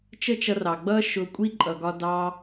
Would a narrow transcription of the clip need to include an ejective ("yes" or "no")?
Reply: yes